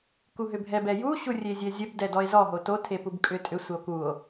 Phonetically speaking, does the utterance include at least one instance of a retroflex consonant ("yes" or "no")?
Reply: no